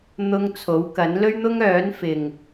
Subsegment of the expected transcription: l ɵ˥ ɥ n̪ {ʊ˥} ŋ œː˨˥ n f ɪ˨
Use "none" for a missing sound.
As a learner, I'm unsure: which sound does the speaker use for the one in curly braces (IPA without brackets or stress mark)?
ʊ˥